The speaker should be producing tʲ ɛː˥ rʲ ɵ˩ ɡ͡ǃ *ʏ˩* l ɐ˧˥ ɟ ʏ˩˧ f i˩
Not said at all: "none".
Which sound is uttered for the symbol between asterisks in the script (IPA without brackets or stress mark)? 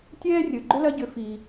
ʏ˥